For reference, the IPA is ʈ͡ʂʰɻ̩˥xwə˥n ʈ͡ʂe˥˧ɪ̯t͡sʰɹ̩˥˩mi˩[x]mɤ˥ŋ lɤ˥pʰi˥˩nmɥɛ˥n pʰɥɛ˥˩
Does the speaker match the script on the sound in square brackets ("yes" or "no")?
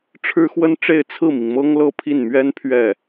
no